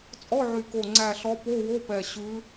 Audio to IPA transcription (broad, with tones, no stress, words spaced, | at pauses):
t͡sʼɔ˧˥˧ʕy˨˩ko˨˩ ŋ͡ǀæ˨˩ɬɔ˨˦ po˧˥˧wo˧˥˧pɛ˨˩ ɕʉ˨˦